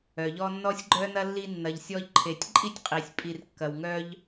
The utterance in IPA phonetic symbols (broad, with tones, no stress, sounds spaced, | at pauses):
œ˩ ʎ ɔ˦ nː ɔ˥ sʲ ɡ͡ǃ œ˥ n ɐ˥ lː i˦ nː ɐ˨ ʎ sʲ ɔ˦ ʎ ǃʰ e˨ tʲ ǃʼ i˥ tʲ qʼ i˩ sʲ pʼ i˨ r kː ɐ˩ w ŋ œ˦ ʎ